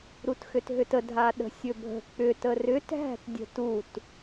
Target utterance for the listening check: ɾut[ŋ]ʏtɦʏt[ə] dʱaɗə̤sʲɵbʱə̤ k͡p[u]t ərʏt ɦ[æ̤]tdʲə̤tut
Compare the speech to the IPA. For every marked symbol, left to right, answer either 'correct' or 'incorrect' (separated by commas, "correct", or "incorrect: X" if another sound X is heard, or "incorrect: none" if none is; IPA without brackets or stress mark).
incorrect: x, correct, incorrect: ʏ, correct